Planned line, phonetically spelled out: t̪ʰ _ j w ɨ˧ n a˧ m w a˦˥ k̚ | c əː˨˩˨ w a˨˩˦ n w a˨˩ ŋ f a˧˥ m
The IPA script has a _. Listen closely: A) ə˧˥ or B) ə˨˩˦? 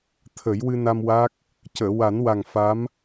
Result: B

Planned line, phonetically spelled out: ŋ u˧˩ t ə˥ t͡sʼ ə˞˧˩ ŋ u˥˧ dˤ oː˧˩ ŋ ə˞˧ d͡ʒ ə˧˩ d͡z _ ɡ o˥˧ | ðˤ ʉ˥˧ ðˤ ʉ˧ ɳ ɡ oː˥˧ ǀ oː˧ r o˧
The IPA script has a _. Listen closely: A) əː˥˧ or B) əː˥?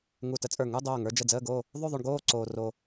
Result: A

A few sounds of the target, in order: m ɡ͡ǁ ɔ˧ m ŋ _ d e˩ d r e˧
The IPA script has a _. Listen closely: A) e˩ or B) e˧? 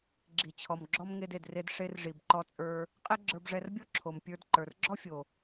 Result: B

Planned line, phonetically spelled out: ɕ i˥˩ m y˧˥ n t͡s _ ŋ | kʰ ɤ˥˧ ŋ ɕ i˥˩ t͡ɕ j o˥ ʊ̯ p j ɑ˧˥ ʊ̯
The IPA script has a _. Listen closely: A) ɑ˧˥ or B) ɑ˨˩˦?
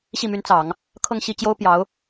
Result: B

